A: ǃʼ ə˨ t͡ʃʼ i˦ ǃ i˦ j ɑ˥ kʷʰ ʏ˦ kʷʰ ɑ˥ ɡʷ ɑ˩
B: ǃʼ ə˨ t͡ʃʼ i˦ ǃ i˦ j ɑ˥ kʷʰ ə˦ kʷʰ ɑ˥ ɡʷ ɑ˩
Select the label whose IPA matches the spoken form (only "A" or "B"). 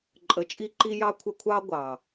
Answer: B